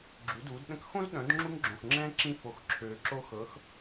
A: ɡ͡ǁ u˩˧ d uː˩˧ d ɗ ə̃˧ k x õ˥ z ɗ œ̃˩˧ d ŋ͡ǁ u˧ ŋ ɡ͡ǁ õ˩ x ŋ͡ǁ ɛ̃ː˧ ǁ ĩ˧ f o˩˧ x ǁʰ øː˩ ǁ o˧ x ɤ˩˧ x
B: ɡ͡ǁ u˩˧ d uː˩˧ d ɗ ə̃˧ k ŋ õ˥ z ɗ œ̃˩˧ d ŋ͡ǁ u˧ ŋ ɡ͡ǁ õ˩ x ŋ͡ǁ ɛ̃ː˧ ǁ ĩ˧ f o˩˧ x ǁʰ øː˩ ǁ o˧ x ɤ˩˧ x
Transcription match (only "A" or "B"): A